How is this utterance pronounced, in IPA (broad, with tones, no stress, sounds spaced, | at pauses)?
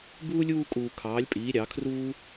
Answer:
b uː˥ lʲ uː˥˧ kʼ uː˨˩ kʰ ɑː˩˥ lʲ pʼ iː˩˥ ɾʲ ɑ˩˥ kʰ r uː˥